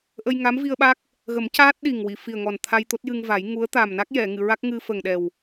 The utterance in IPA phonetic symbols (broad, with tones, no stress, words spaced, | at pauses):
ʔə˧jŋa˧˥mvi˧ə̯ɓa˦˥k̚ | ɣə˨˩˦mcaː˦˥t̚ ɗi˨˩ŋwi˨˩˨fi˨˩ə̯ŋɔ˨˩n t̪ʰa˧jt̪o˦˥t̚jɨ˧ŋva˨˩˦j ŋu˧˥ə̯ t̪a˨˩mna˦˥k̚jɛ˨˩˨ ŋɨ˨˩˨ɹa˦˥k̚ ŋɨ˧fə˨˩ŋɗɛ˨˩w